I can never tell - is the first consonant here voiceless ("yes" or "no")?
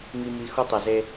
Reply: no